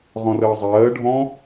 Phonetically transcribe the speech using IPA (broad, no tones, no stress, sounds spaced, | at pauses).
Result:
ʁ ɔ̃ r əː zˤ ɜː ɖʱ ɔ̃